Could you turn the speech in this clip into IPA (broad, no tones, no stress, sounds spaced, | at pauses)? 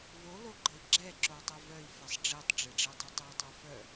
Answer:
v o l o ɡ͡ǃ ə i̯ ɡ͡ǁ ɛ ǁ o w tˤ œ v œ i̯ f ɛ sˤ ɖ͡ʐ e tˤ ɖ͡ʐ e ɖ͡ʐ e dˤ œ tˤ ɛ w tˤ o f œ